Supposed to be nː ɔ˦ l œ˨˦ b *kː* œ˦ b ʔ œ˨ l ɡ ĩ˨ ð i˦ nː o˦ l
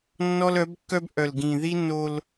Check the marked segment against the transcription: correct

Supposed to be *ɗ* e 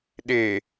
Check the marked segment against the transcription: correct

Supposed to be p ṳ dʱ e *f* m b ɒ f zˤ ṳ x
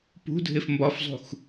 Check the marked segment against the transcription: correct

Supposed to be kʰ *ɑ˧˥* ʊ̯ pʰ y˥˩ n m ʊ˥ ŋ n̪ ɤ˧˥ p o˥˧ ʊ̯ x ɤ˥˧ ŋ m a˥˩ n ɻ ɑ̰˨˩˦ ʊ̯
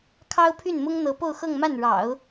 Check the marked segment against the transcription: incorrect: ɑ˥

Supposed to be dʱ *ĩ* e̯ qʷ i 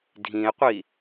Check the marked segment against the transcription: correct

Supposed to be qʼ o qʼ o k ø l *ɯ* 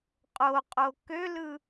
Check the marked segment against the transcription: correct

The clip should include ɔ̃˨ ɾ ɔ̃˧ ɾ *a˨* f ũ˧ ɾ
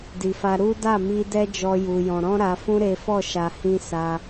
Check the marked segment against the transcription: correct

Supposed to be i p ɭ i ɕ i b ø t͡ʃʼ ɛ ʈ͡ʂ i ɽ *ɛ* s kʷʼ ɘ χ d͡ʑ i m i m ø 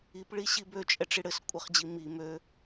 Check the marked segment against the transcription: incorrect: ɘ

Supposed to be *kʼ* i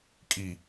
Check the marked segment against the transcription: correct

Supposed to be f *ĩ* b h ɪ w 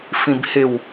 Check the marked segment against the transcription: correct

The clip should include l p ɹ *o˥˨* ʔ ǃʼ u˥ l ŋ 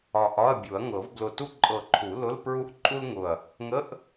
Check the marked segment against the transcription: incorrect: u˥˨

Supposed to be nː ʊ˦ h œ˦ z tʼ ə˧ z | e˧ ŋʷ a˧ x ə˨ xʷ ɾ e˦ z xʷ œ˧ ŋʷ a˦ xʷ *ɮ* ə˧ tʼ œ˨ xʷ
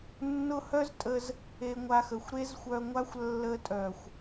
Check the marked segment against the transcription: incorrect: lː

